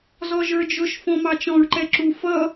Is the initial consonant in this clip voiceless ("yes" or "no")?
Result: no